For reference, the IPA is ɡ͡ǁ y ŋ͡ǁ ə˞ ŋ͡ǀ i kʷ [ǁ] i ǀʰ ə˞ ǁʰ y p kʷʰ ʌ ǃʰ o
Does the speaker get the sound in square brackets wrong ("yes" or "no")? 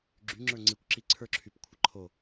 no